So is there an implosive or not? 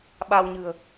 yes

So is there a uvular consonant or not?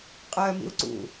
yes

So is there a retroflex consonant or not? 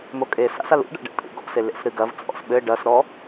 yes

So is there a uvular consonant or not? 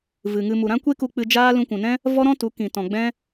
no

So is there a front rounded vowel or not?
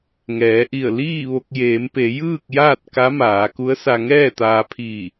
no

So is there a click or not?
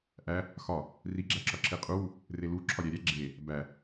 yes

